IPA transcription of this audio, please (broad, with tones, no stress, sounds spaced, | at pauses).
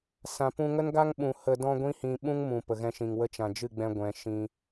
s ã˨ p ũ˧ ŋ ə˦ n ɡ a˦ ŋ ɓ ũ˨ h ə˨ d ɔ̃˧ ɡʷ ĩ˦ h ĩ˧ ɓ ũ˦ ŋ m ũ˨ p ə˨ ɣ ɛ̃˧ ʃ ĩ˨ ŋ w ə˧ t͡ʃ ã˨ d͡ʒ ɨ˦˨ ɡ͡b ɛ̃˧ ɡʷ ɛ̃˨ ʃ ĩ˧